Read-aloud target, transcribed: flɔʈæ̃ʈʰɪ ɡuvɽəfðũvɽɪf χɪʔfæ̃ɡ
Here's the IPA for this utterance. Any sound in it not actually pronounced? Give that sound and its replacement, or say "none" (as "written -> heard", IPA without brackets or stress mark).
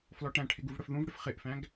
none